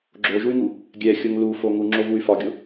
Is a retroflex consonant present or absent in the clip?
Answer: absent